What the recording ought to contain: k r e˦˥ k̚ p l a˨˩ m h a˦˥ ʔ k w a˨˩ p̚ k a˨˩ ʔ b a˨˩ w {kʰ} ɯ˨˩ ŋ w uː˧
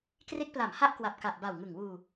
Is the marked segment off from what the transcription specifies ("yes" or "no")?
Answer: yes